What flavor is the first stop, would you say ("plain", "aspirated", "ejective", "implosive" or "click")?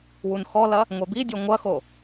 plain